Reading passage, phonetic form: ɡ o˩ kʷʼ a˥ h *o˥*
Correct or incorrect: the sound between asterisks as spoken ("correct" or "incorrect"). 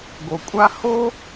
correct